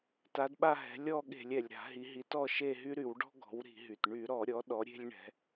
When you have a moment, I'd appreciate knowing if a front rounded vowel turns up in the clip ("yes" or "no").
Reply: yes